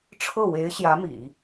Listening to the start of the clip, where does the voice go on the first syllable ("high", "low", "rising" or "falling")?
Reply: falling